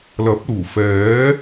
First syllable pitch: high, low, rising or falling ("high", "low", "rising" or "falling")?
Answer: rising